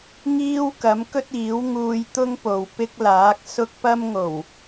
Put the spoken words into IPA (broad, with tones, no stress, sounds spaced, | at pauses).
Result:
ŋ iː˥ w k ɐ˨˥ m k ɵ˥ t̚ iː˨˥ w ŋ uː˧ j t̪ ʊ˥ ŋ p o˨ w p ɪ˥ k̚ l aː˨˥ k̚ s ʊ˥ k̚ p ɐ˥ m ŋ o˨˩ w